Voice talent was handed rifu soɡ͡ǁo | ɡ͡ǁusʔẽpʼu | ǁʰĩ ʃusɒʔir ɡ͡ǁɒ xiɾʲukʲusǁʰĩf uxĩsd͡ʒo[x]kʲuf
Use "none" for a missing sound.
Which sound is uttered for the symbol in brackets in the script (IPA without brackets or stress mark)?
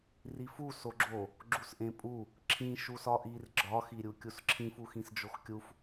x